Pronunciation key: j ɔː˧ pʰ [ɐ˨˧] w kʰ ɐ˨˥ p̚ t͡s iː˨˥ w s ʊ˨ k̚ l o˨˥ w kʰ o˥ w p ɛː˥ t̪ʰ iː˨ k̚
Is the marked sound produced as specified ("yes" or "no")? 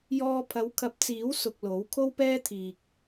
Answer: yes